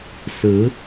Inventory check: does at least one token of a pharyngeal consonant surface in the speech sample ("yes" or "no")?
no